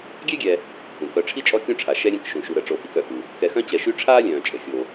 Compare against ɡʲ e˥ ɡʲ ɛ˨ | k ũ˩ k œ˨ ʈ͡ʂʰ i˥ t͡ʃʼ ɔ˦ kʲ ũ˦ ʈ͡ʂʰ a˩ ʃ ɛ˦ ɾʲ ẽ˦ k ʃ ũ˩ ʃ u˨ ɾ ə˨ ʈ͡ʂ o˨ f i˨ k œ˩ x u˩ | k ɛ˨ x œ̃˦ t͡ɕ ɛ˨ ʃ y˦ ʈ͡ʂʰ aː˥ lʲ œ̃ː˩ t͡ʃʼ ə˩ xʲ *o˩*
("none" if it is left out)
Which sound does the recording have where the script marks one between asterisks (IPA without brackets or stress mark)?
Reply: o˩